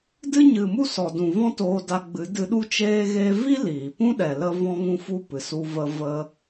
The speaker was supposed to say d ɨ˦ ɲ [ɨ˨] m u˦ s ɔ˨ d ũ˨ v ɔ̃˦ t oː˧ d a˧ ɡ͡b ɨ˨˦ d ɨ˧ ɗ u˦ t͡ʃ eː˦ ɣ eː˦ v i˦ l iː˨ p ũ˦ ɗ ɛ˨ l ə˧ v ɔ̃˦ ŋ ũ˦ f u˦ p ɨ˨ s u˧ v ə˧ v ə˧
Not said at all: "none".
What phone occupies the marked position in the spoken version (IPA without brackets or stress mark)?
ɨ˨